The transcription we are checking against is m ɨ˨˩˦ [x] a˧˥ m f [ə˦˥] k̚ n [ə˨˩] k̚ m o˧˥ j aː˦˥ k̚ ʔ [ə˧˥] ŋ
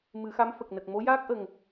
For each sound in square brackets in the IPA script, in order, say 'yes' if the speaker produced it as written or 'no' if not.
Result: yes, no, yes, no

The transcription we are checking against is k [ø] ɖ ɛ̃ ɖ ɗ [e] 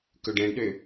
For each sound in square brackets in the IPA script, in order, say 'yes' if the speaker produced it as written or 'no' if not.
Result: no, no

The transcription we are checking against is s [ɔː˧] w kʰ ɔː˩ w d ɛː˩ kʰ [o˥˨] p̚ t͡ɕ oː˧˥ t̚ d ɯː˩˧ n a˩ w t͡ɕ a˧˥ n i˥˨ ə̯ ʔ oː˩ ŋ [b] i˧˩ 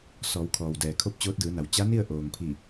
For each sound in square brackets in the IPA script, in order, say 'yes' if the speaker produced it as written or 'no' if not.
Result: no, yes, no

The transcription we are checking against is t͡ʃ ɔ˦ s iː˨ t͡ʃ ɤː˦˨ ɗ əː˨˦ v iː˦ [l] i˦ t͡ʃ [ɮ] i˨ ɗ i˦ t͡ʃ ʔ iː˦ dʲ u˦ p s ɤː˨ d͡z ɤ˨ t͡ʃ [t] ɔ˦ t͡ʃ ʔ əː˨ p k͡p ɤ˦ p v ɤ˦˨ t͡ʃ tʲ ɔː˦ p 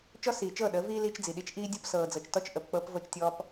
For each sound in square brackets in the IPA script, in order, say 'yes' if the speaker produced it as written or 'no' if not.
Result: yes, no, yes

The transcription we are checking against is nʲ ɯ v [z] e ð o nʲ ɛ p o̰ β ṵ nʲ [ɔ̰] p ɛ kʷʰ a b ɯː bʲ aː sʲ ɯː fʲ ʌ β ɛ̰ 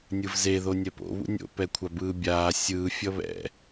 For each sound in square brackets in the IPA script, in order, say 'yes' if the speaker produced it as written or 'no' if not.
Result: yes, no

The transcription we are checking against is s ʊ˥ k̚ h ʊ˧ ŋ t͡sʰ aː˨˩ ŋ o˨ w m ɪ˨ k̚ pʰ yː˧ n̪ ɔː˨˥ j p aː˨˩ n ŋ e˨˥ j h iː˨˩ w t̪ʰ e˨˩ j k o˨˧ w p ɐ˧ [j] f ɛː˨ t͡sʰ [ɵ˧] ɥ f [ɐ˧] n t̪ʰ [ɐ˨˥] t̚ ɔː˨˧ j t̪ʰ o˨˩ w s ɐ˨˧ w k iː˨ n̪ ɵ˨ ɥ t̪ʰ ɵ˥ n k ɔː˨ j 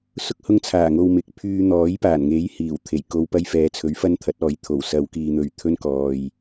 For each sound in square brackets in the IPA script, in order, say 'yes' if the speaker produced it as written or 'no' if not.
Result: yes, no, no, yes

